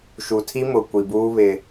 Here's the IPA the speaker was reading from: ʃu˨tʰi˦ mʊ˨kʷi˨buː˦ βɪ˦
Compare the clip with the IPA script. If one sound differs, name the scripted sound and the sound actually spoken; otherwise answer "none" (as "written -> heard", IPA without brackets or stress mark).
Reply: none